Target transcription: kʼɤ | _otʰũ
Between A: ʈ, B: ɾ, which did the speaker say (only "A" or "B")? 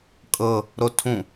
B